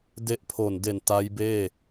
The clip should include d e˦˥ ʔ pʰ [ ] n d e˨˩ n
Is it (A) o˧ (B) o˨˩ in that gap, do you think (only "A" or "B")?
B